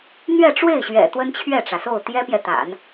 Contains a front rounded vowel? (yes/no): no